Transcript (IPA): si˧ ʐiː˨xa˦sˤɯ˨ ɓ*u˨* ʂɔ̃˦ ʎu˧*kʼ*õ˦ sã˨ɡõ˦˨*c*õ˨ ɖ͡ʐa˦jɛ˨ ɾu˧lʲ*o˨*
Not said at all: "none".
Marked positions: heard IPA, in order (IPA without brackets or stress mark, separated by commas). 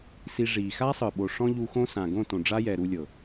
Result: o˨, x, t, ɤ˨